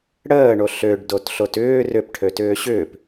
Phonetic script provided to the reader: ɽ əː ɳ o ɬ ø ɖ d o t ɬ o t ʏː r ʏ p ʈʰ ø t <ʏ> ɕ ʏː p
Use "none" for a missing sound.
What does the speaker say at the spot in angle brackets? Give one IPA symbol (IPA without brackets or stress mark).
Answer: ʏː